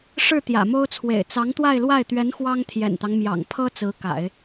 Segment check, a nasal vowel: absent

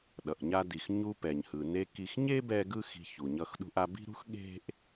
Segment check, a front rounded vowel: absent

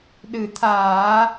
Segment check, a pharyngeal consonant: absent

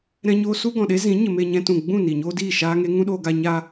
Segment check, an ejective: absent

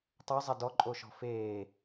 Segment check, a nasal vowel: absent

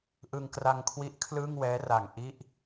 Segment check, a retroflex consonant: absent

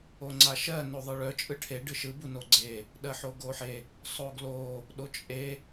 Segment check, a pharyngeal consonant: present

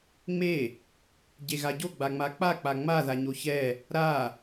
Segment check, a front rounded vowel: absent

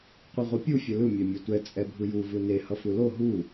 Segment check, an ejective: present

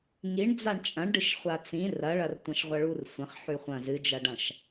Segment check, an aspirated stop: absent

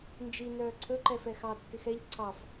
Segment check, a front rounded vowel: present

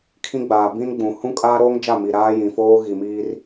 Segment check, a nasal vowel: present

